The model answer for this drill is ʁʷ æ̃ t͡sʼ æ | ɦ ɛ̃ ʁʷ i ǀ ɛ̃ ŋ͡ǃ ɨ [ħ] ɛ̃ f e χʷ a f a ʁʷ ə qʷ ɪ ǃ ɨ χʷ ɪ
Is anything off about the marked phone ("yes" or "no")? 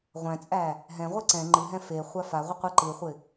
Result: yes